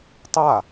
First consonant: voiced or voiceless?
voiceless